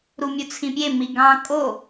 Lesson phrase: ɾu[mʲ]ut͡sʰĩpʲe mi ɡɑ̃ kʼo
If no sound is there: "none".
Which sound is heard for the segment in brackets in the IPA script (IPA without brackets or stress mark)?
mʲ